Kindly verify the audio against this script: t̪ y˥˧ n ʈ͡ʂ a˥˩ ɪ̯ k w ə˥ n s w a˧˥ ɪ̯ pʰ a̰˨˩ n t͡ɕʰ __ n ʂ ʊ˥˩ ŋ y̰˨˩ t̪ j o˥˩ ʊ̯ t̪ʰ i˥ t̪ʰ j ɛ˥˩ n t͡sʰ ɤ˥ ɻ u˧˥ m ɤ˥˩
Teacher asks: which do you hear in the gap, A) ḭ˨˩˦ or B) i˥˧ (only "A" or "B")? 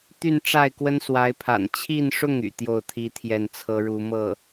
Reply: B